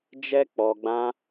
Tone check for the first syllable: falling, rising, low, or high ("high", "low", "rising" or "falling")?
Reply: high